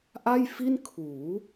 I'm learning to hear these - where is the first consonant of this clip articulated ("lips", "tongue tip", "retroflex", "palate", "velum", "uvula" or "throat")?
throat